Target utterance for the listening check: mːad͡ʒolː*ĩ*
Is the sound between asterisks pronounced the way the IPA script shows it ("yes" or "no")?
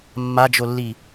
no